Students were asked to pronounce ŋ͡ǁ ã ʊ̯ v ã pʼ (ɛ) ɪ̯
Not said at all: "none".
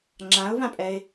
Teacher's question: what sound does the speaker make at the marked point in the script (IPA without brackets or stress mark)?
ɛ